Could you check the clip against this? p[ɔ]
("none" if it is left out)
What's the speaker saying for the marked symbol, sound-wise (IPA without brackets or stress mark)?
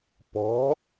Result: ɔ̤